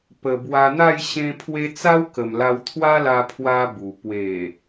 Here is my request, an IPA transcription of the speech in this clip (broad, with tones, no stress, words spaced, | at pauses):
pə˨˩ bwa˧n̪a˥˧j ɕẽ˧pʰwe˧ t͡sa˦wkə˨˩mla˧w t̪ʰwa˦la˧pʰwa˧ bu˨˩ pwe˨˩